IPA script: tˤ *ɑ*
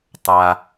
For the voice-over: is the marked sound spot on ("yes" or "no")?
no